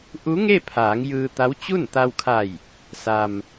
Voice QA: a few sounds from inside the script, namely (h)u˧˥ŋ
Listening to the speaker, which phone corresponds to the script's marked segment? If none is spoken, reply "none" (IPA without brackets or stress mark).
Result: ʔ